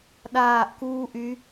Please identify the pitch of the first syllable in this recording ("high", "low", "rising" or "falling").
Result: falling